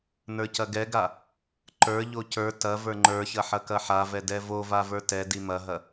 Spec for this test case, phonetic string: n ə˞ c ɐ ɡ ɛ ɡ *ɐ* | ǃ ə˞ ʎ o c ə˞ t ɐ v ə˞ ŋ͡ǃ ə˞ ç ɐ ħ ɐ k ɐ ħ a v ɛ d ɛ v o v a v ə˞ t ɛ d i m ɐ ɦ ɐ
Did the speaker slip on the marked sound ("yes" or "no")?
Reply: yes